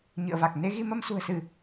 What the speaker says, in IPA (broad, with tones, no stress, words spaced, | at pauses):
ɲɨ̰˧˨ə̯va˨˩k̚ ne˨˦ɣi˧ mə˧msṳ˨˩ə̯sɨ˧˩˨